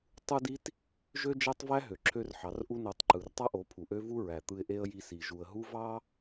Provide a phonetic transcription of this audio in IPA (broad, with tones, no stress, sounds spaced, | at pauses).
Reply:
tˤ u˦ d i˦ t | ʒ ø˦ d͡ʒ æ˦ tˤ v æ˦ ɦ ø˨ ǁʰ ø˦ r ħ ɑ˨˦ r ʔ u˧ n o˨ tˤ ǃ ɯ˨ r tˤ ɑ˦ ʔ o˨˦ pʰ u˨ ʔ ø˦ v u˦ ɹ æ˨ t̪ ɯ˧ ɪ̯ ʔ e˦ ə̯ j i˧ s i˨ ʒ u˨ ə̯ ɦ u˦ v ɑ˦